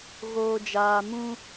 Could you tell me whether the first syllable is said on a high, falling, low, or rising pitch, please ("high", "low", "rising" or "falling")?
low